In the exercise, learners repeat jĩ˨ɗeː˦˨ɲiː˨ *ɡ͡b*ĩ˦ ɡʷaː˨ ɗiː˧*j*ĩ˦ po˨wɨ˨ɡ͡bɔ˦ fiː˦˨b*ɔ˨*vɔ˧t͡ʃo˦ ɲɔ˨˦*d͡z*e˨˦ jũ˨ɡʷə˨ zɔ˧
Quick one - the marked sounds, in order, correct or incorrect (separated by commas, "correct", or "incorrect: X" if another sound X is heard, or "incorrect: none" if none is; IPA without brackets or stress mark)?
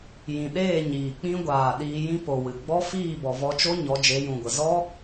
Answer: incorrect: k͡p, correct, correct, incorrect: d͡ʒ